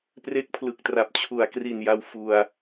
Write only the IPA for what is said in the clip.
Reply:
p r e˦˥ k̚ pʰ l ɯ˨˩ k̚ t r a˨˩ p̚ t͡ɕʰ u˩˦ a̯ k r i˨˩ n j a˧ w f u˧ a̯

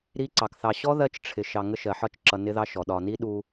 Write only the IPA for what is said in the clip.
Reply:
ɾ i˦ ǀ ɑ˨ k θ ɑ˨ ɕ ɔ˦ ð ɜ˦ t͡ʃ ʈ͡ʂʰ ɪ˨ ʃ ɑ˨ ŋ ə˦ ʃ ɜ˨ ħ ɒ˦˨ t͡ʃ ǁ ʌ˨ n ɪ˦ ð ɑ˦ ʃ ɔ˨ ɗ ɒ˨ n i˦ ɗ u˦

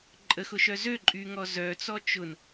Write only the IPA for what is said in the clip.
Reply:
ǃʼ ə x ʊ ʃ œ z ø ǃʼ y ŋ ɔ z œ t͡s ɔ t͡ʃ ʊ n

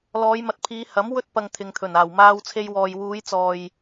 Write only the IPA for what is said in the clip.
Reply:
l ɔː˨˧ j m ɐ˨˥ t̚ pʰ iː˨˧ h ɐ˨˥ m w ɵ˥ t̚ p ɐ˧ ŋ t̪ʰ ɪ˨ ŋ t̪ʰ ɵ˨˩ n aː˨˩ w m aː˧ w t͡sʰ e˧ j w ɔː˨ j w uː˨˧ j t͡s ɔː˨ j

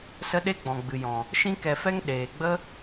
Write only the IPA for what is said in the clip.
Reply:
s ə˦ ɗ e˦ ɡ͡b ɔ̃˨ ɡ͡b ɨ˨ j ɔ̃˨ | ʃ ĩ˦ k ɛ˧ f ɛ˦ ŋ ɗ eː˨ ɡ͡b ə˦

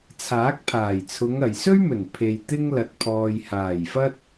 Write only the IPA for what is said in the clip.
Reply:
t͡sʰ aː˨˥ k̚ pʰ aː˨˩ j t͡sʰ ʊ˨˧ ŋ ɐ˨ j s ɵ˥ ɥ m ɵ˨˩ n pʰ e˨ j t̪ ɪ˥ ŋ l ɐ˨˥ t̚ pʰ ɔː˨ j h aː˨˩ j f ɐ˥ t̚

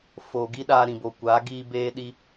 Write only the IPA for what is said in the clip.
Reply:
f oː˨ ɡ i˦ ɗ aː˧ ɾ ĩ˨ b o˨ kʷ aː˨˦ ɡ iː˧ b eː˧ ɗ i˧

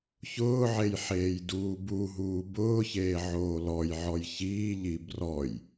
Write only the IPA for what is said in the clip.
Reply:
ç ʊː ʕ e j ħ eː j d uː b u ɦ uː b ʊː ç eː ʕ oː l ɔ j ʕ ɔ j ç iː ʎ i b r ɔ j

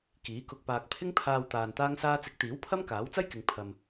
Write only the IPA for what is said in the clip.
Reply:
k iː˨˥ k ʊ˧ k̚ p aː˧ k̚ pʰ ɪ˥ ŋ pʰ aː˧ w t̪ aː˧ n t̪ aː˥ ŋ s aː˥ t͡s ɪ˨˥ k̚ t̪ iː˨˥ w pʰ ɐ˥ m k aː˨˥ w t͡s ɐ˥ j k ɪ˨ ŋ pʰ ɐ˧ m

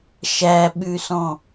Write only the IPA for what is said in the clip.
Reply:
ʃ æ ɓ ʉ s ɔ̃

